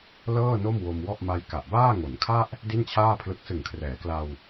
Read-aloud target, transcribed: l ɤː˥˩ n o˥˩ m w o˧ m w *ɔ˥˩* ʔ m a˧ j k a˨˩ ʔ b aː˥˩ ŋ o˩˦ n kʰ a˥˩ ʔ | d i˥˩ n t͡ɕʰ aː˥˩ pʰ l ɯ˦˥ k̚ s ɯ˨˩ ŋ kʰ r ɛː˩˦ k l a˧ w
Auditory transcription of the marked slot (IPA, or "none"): ɔ˥˩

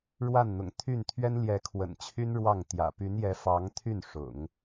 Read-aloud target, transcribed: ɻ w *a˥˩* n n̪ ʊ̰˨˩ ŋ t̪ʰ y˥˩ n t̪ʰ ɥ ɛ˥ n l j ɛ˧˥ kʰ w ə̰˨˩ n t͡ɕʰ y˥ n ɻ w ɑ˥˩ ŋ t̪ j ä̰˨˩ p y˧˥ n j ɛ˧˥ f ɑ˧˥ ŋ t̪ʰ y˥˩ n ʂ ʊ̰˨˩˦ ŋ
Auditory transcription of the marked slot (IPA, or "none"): a˥˩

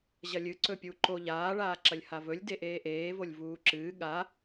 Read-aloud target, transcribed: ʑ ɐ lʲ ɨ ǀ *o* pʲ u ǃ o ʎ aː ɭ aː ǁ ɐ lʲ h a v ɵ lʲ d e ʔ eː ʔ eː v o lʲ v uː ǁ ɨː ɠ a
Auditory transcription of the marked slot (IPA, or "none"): ɵ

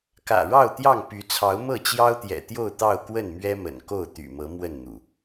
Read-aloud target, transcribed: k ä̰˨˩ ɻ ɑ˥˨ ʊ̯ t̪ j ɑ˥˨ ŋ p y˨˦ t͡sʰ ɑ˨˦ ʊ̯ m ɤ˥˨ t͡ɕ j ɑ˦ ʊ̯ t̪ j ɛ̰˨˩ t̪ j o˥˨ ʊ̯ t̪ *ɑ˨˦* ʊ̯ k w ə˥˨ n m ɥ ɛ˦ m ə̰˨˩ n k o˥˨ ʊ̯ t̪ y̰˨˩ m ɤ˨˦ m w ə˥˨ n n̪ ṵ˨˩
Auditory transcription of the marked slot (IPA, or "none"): ɑ˥˨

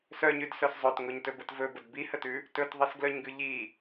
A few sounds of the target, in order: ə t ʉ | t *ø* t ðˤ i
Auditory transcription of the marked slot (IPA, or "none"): ɵ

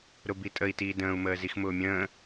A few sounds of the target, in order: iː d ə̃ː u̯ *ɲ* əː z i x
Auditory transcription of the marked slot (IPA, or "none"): m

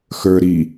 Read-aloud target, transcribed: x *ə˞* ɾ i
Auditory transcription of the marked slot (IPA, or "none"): ə˞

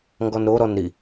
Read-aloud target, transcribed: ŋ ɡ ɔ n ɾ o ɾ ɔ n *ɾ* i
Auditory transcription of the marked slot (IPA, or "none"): ɾ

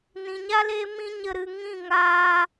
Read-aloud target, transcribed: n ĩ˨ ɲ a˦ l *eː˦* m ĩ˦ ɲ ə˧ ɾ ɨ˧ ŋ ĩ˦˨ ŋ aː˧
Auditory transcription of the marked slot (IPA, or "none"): eː˦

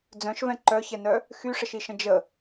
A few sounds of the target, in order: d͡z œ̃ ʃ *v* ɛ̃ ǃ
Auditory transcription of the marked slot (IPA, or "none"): v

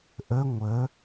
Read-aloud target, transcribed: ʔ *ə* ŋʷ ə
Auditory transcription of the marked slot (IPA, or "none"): ə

